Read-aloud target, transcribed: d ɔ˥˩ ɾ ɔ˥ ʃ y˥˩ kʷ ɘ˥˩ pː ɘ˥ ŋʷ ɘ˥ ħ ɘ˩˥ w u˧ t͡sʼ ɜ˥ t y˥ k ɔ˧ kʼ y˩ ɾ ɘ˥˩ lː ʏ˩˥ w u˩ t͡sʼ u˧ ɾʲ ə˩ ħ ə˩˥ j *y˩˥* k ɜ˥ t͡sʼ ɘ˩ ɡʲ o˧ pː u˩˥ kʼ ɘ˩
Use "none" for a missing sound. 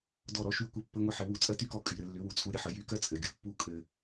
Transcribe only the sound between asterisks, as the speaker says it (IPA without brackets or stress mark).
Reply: y˩˥